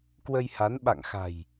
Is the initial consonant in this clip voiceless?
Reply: yes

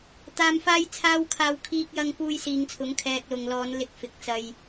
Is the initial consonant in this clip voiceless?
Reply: yes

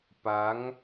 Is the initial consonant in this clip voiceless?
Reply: yes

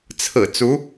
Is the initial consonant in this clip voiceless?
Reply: yes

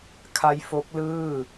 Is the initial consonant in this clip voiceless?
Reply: yes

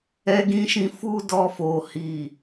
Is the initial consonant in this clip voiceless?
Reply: no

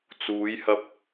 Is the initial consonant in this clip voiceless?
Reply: yes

